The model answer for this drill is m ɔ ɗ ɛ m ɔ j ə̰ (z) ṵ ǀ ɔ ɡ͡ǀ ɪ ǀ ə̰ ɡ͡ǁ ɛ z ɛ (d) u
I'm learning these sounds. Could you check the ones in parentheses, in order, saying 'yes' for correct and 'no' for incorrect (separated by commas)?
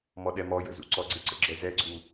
yes, no